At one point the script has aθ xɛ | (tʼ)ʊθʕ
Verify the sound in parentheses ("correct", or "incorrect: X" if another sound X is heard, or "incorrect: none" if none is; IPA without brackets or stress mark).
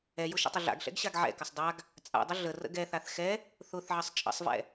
incorrect: θ